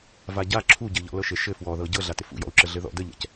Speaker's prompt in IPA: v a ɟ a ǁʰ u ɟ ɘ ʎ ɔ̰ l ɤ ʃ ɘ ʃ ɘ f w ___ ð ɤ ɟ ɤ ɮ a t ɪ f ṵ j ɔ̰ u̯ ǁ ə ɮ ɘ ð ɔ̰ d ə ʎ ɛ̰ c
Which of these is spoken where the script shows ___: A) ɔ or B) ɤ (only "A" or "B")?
A